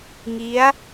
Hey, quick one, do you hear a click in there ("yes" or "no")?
no